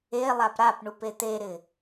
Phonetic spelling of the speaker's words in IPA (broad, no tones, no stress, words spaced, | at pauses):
e lˠapɾapɳupe t̪eɾɪ